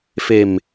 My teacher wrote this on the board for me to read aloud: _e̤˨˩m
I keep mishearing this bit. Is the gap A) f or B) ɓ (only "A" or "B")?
A